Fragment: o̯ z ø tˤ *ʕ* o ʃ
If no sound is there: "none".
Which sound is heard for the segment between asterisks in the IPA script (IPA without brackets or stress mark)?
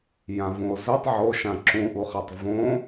ʕ